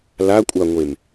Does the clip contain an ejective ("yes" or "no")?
yes